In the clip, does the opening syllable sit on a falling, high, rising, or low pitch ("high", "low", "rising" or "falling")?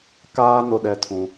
high